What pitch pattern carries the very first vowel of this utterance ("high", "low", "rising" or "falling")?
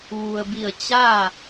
low